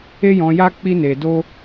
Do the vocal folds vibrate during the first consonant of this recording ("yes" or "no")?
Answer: yes